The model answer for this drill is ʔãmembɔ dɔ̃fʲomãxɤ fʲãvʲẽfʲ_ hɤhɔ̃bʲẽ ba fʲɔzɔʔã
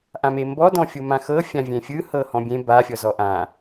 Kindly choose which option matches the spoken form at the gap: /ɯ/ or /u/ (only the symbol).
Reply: ɯ